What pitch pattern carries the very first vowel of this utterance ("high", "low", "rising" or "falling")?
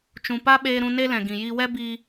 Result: low